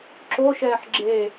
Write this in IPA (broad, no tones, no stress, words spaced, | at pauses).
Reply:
ǁoʃɛːħ ɡ͡ǁe